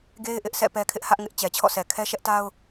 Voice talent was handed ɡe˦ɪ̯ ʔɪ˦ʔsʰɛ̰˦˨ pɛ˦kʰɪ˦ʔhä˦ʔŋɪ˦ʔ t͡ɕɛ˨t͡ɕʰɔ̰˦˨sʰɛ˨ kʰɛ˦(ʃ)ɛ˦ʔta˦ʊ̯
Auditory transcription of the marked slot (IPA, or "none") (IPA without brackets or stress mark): ʃ